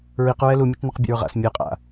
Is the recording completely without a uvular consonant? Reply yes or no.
no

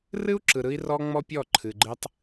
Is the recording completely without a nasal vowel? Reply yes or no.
yes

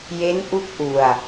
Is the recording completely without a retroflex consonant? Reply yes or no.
yes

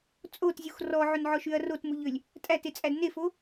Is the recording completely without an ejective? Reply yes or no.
no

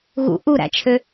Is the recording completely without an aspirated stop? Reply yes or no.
no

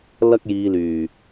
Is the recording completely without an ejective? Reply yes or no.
yes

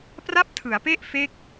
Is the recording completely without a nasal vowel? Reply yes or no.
yes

